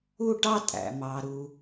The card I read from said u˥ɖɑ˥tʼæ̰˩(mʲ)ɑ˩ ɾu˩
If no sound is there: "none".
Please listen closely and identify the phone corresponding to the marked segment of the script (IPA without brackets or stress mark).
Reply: m